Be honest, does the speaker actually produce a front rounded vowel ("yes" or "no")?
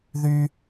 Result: yes